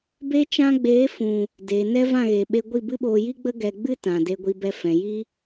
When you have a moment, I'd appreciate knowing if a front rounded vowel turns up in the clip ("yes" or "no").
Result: no